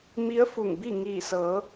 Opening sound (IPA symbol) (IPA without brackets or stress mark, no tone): m